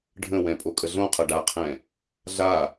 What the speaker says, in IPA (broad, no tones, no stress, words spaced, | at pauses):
ɖʱə̃wɛ̃ pʼokʼəɮõqʰɤ ɖaqʰɛ̃ | ɮa